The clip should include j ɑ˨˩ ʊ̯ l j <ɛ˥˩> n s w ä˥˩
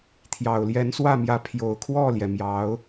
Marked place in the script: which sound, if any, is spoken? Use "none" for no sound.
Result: ɛ˧˥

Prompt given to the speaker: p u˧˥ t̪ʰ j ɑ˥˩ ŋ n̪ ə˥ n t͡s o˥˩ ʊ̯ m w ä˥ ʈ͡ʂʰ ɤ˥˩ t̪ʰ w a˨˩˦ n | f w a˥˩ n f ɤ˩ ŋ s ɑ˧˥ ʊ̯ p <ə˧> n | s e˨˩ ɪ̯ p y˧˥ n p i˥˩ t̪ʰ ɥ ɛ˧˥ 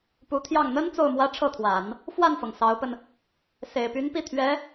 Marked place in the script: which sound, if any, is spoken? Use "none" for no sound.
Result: ə˧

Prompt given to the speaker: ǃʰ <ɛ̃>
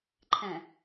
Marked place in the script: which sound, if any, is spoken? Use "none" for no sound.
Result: ɛ̃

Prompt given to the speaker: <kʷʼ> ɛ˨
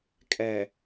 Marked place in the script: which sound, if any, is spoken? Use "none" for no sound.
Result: kʼ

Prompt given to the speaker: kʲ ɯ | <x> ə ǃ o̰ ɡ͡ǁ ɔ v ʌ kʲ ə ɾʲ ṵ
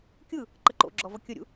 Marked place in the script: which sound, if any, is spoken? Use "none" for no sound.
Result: ǃ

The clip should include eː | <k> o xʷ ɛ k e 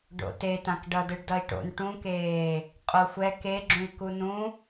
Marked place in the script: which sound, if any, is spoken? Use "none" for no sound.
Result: qʼ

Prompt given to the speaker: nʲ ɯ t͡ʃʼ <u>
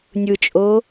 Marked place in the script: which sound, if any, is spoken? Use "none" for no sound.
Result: o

